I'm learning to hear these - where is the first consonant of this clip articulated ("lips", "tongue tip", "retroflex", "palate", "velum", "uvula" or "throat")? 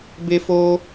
lips